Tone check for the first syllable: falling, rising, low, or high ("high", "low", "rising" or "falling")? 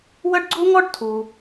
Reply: high